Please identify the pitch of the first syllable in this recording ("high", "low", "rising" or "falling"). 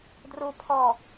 low